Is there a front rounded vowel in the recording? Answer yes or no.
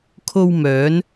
yes